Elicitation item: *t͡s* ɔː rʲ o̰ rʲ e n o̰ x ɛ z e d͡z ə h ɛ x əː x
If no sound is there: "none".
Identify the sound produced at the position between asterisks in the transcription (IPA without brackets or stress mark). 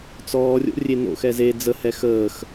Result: t͡s